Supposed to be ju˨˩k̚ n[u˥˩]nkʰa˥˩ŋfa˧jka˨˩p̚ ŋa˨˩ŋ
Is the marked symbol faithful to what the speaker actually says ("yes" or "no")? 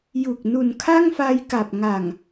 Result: no